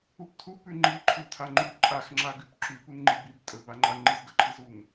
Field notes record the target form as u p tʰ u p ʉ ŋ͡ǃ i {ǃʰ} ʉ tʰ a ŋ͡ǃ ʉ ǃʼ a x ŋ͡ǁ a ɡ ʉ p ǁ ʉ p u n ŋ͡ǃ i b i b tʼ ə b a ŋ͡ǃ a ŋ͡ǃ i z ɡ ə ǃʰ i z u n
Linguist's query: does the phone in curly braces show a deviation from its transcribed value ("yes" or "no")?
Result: no